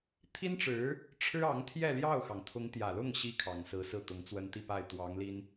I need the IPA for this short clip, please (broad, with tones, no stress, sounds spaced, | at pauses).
t̪ʰ i˥ n ʈ͡ʂ ɻ̩˧˥ | ʈ͡ʂʰ ɻ̩˥ ɑ˧˥ ŋ t̪ʰ j ɛ˥˧ l j ɑ˥˩ ʊ̯ x ɑ˩ ŋ t̪ʰ ʊ˧˥ ŋ t̪ j ä˨˩ l ʊ˥˩ ŋ ɕ i˥ kʰ ɑ˨˩ ŋ s ɹ̩˧˥ s ɹ̩˥˩ t̪ ʊ˧˥ ŋ t͡s w ə˥ n t̪ i˥˧ p a˥˩ ɪ̯ t̪ w ɑ˧˥ ŋ l i˥ n